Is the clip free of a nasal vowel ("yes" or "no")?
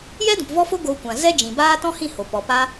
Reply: no